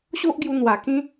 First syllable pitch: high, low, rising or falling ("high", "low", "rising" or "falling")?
high